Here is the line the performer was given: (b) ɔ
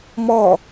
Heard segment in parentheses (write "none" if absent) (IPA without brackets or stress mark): m